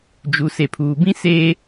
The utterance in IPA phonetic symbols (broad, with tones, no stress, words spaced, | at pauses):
d͡ʒu˨ se˨pʰuː˨bĩ˦ seː˦